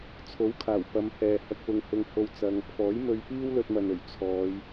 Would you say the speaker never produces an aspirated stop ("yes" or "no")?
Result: no